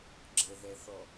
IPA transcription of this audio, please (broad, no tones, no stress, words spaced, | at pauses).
ɡ͡ǁəðɛθɔ